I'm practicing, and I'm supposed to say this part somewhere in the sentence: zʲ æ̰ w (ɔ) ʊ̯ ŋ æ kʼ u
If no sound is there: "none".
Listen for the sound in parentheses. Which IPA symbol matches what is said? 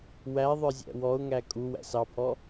ɔ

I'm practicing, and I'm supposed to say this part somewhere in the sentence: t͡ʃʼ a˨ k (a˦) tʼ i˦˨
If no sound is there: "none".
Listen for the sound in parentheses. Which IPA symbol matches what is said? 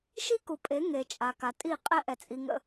a˨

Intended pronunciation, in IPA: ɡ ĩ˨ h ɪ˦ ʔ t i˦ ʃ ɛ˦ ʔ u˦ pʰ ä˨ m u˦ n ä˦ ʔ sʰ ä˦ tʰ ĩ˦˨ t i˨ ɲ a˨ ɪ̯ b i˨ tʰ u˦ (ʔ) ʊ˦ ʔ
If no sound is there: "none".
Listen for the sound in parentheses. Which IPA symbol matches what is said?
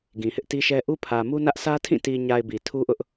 ʔ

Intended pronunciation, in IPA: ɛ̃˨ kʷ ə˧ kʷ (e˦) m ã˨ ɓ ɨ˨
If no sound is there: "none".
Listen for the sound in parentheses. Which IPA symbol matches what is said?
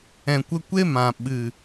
e˦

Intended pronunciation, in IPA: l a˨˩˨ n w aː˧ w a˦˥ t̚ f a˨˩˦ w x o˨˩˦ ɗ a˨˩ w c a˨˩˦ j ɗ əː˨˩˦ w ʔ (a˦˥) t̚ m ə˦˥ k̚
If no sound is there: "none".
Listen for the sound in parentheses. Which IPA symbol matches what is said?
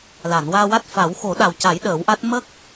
a˦˥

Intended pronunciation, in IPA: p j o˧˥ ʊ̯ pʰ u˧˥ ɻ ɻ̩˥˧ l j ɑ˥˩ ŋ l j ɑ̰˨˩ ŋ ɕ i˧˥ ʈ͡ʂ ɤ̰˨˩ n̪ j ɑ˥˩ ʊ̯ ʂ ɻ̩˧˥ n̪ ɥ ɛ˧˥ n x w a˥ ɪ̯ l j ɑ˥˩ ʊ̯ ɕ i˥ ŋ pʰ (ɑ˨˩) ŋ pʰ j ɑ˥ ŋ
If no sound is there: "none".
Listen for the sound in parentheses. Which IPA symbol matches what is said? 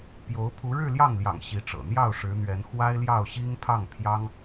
ɑ˥˩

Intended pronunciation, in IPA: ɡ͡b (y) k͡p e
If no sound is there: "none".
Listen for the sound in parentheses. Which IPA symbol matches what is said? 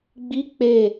i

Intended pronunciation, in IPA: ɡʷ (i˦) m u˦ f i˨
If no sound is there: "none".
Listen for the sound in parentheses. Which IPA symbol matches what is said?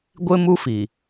ɪ˦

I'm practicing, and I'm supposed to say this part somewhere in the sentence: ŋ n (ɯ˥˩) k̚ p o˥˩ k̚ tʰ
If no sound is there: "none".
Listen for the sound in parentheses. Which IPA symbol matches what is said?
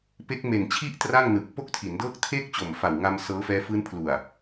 ɯ˨˩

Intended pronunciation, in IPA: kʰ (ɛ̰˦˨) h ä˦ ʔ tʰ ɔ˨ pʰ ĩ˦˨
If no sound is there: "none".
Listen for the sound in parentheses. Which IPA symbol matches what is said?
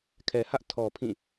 ɛ˨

